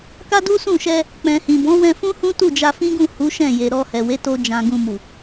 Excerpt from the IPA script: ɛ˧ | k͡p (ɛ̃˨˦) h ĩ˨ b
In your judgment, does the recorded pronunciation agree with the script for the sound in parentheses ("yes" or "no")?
no